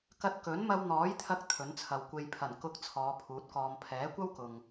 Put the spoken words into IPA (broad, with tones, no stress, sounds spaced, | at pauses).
k ɐ˧ t̚ k ɵ˨˥ n m ɐ˧ w n̪ ɔː˨˥ j t̪ʰ ɐ˧ k̚ t̪ʰ ɵ˨˥ n t͡sʰ ɐ˨ w kʷ e˧ j pʰ ɐ˨˩ n k ʊ˨˥ k̚ t͡sʰ ɔː˨˧ pʰ uː˨˥ t̚ k ɔː˧ m pʰ ɛː˨˥ kʷ ɐ˥ w k ʊ˨ ŋ